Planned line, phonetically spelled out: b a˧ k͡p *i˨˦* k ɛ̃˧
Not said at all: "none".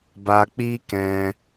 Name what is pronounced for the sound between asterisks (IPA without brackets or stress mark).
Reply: i˦